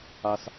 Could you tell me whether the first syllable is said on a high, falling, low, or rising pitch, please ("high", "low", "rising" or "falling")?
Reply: low